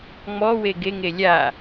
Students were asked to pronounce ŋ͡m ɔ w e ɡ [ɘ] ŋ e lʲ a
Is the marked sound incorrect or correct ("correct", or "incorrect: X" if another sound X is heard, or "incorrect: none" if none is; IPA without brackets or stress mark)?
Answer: incorrect: e